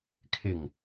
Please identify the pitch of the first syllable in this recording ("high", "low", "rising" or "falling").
low